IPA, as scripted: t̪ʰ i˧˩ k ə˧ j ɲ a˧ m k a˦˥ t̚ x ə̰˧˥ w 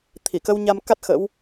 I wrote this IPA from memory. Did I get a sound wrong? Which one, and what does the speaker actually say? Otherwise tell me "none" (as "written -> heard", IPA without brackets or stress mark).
j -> w